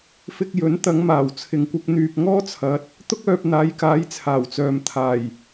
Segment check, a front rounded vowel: present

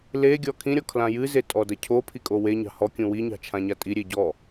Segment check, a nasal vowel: present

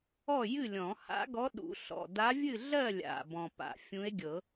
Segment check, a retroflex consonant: absent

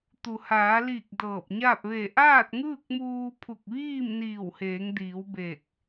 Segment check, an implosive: absent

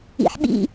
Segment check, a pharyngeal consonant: present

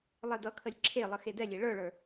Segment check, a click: present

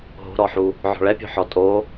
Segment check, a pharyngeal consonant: present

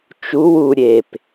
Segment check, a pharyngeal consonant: absent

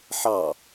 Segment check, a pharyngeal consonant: present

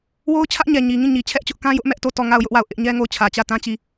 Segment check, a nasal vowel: present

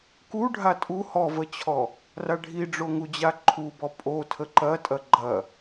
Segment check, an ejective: present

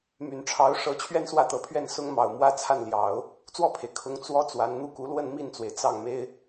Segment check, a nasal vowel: absent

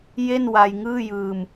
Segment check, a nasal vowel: absent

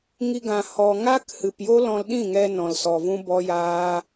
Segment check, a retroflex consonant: absent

